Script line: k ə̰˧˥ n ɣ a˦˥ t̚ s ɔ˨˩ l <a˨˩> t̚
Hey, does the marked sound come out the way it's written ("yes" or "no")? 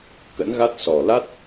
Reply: no